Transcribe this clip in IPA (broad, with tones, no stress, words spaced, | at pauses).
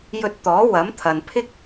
jɵ˧t̚t̪ɔː˨˥ wɐ˨˥mt̪ʰɐ˨n pʰɪ˥k̚